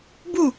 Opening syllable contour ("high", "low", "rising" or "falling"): falling